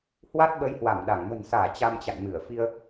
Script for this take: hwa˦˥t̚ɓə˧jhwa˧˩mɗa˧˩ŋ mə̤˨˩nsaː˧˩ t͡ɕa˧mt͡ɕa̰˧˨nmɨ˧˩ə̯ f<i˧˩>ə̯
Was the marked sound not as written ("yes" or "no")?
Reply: yes